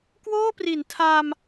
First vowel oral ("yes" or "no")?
yes